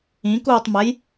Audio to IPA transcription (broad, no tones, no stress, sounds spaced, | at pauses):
ĩ k uː tˤ m ɛ j